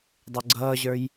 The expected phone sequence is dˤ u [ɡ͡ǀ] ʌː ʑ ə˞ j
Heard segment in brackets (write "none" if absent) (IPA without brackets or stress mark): ɡ͡ǀ